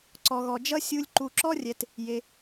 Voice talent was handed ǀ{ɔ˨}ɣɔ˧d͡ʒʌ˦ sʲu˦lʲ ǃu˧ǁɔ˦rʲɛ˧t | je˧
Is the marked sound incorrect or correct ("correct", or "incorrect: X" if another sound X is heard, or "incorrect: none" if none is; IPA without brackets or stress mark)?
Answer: incorrect: ɔ˧